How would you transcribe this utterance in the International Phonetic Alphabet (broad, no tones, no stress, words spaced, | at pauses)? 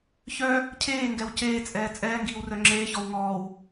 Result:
çœ | cʰeːŋɡɛw ceːt͡sʼɛː t͡sʼɛːŋɡiːwrœ ŋ͡ǁeːçɔw ŋɔːw